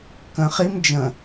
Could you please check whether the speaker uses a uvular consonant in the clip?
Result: yes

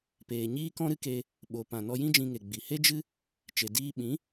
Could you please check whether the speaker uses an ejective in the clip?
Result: no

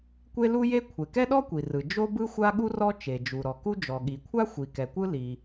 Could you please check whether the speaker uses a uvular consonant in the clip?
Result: no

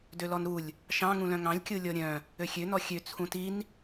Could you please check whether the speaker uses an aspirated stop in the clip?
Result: yes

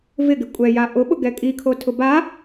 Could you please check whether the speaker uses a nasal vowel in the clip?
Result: no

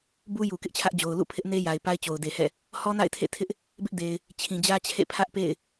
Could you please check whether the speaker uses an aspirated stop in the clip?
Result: yes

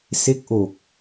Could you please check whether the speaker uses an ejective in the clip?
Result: no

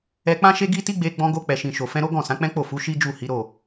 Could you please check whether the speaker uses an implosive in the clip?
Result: no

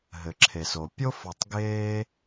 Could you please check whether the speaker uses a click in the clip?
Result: yes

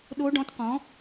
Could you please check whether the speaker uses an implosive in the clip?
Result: yes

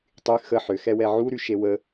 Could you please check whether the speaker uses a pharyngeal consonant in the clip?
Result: yes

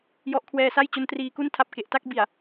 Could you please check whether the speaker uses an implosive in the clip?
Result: no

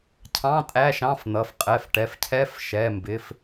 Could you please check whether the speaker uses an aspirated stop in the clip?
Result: yes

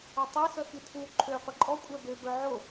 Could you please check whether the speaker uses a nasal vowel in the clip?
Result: no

